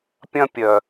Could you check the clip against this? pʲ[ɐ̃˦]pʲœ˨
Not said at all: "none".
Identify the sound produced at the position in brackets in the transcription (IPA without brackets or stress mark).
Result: ɐ̃˦